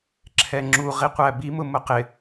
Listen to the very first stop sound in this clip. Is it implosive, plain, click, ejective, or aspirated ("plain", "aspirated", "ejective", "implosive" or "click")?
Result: click